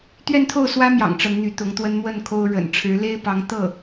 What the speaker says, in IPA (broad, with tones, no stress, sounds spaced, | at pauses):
t̪ ɥ ɛ˥˧ n t̪ʰ o˥˩ ʊ̯ s w ä˥ m j ɑ̰˨˩ ŋ ʈ͡ʂ ə˧˥ n n̪ y˧˥ t̪ ʊ˧˥ ŋ t̪ w ə˥ n m w ə˥˩ n kʰ o˥ ʊ̯ ɻ ə̰˨˩ n ʈ͡ʂʰ ɻ̩˧˥ l e˥ ɪ̯ p ɑ˧˥ ŋ t̪ ɤ˥˩